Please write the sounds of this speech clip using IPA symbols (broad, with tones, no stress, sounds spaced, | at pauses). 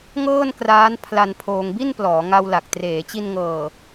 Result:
ŋ ɤː˥˩ n k r aː˦˥ n pʰ l a˧ n pʰ oː˧ ŋ b i˥˩ n p l ɔː˩˦ ŋ a˧ w l a˨˩ k̚ t r eː˩˦ t͡ɕ i˧ n ŋ ɤː˨˩